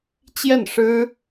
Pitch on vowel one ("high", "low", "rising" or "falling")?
falling